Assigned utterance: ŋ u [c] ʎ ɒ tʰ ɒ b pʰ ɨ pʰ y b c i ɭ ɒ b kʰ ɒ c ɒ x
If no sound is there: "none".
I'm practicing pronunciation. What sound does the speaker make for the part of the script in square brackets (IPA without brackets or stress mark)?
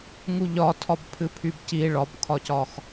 none